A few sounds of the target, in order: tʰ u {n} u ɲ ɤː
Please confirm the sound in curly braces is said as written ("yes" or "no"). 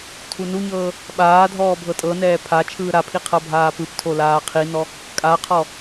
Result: yes